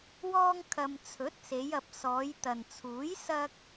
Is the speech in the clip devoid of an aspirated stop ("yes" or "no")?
no